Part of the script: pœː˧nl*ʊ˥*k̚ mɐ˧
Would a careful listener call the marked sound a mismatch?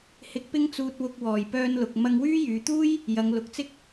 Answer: yes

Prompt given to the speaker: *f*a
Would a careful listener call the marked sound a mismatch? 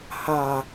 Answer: yes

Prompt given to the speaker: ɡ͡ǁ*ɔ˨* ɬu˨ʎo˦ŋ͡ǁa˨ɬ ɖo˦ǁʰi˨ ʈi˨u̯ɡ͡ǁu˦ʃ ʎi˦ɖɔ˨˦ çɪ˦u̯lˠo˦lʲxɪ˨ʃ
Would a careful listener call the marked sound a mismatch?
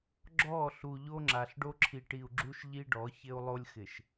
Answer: yes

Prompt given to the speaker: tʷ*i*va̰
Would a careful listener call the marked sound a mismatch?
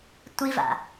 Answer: no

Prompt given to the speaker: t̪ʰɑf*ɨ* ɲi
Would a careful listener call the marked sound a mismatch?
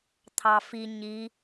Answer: yes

